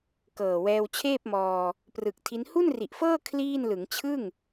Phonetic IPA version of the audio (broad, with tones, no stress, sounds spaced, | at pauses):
k ɤː˨˩ w ɛː˧ w t͡ɕʰ eː˥˩ p̚ m ɔː˧ | p r ɯ˨˩ k̚ tʰ i˦˥ n h u˥˩ n r i˨˩ ʔ f ɤː˥˩ kʰ l iː˥˩ n l ɯ˩˦ ŋ t͡ɕʰ ɯ˥˩ ŋ